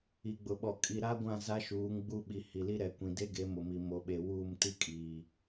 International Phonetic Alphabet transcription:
i˨ɡ͡bʊ˨ɓɔ˨ kʼi˨ɾa˦ɡʷã˦˨ za˦ʃuː˨˦ŋ ɡ͡bu˦˨ɓi˨ hi˨li˦ɾɛ˨ kʷĩ˨de˦ɡe˨˦ mʊ˨mi˨ mo˨ɓe˨wuː˦˨m ti˦kʼiː˨

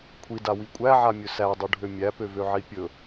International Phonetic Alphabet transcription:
kʷʰidawi kʷʼæʕamʲɵ sædˤuɖʱø mʲæpøvøʕi pʲɵ

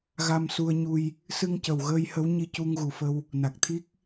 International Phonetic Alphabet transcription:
ɣa˧msu˧ə̯ɲu˧j | sɨ˧ŋcə˨˩wɣəː˧jhə˧˥w ɲi˧cu˧ŋɣu˨˩fə˧w | na˨˩k̚t̪ʰi˦˥k̚

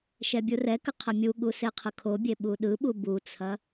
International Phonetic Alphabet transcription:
ʃɛbʲurɛkə qʰəmʲuɠu seqʰɯkʰobʲe ɓuɗɯɓu but͡sʰɐ

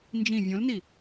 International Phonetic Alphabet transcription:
nd͡ʒĩ vʲõlni

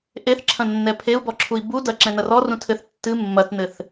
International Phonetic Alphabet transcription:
ʔeθǁʰɐ̃ nːɛpʰeu̯bɔǁʰui̯ bu dɐ ǁɛ̃nɐrɔ rũtʰɘθ tːɨ mːɐtnɘθ

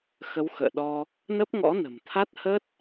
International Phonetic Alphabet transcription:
xə˨˦wxə̰ː˧˨ɗɔ˧ | nə˦˥p̚ŋɔ̰˧˥nə̤˨˩mt̪ʰa˦˥t̚ hə˦˥t̚

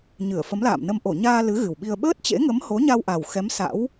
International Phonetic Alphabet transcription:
ɲɨ˧˩ə̯fə˨˦mla̰ː˧˨mnə˧m ʔo˧˩ɲaː˧ lɨ˨˦ ɣɨ˨˩wɓi˧ə̯ ɓəː˦˥t̚t͡ɕḛ˧˥ŋə˨˦m ho˨˦ɲa˧wʔa˨˩w xɛ˨˦m sa̰˧˥w

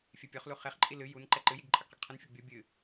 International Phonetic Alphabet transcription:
fʲɛpʲɔχlu χeχǃʼi lɨ jun ǃɛǃɨjiɡ ǃʼɐɡqɐɡqʰɨnfʲɔɡ bʲo bʲɨ

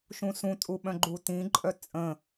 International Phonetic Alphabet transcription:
ʃũsũ tʼuɓœ̃ɡ͡ǃutĩ ǃʼœt͡sʼə̃

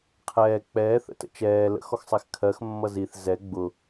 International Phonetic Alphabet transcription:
qʰɛː k͡pɛːθə̰tə̰ t͡ʃɛː lə̰xɔxsˤɛx kʰɜxmːʌ ziθ zɛ ɡ͡bʊ

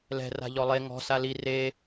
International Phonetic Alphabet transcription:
lɛ̤ ra̤ʎɔlˠe ŋɔ̤ sali re

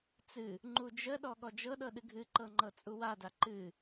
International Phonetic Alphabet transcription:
t͡sɨ | ŋ͡ǃud͡ʒəɗɔ ɠɔd͡ʒɤɗɤ ɗɨɡʱɨǃɤ ŋ͡ǃɤt͡sʼuwada ǃɨ

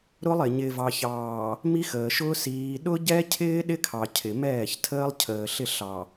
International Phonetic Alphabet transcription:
ɾʊ˦lˠɪ˨ ɲɪː˨vɑ˨ çɑː˨ | mi˦xəː˨ʃʊː˦ siː˨ɗʊ˦ ɟɛ˦cʰɪː˦ ɗɪ˦kʰɑ˨ cʰɪ˨mɛː˦˨çtʰəː˦lˠ cʰəː˨ ɬɪ˦˨ɬɑ˨

